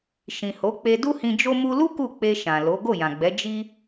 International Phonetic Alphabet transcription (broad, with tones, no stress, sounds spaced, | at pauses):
ʃ ĩ˨ h o˨˦ k͡p e˧ d u˦ h ĩ˧ d͡ʒ o˧ m u˧ l u˦ k u˦˨ k͡p e˧ ʃ ã˨ l o˨˦ ɡ o˦˨ j ã˨ ɡ͡b ɛ˨˦ d͡ʒ i˦